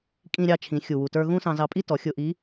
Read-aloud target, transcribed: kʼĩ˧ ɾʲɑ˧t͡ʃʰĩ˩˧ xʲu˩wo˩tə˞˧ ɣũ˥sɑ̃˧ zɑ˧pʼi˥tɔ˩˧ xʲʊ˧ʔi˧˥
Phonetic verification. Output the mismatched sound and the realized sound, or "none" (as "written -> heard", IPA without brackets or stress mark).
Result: o˩ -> u˩